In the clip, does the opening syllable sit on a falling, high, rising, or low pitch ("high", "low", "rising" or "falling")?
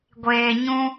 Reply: low